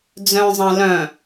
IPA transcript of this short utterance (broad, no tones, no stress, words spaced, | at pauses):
d͡zœ̃zˤã lœ̃